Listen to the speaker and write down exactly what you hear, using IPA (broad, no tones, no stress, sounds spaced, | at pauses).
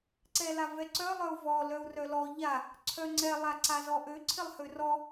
ǀ ɛ l a v ɛ ǀ œ lˠ œ u̯ v ɔ l œ u̯ r œ l ɔ ʎ a | ǀʰ œ ŋ͡ǀ ɛ lˠ a ǀ a z ɔ ʔ ø ǀʰ ɪ lˠ h ø r ɔ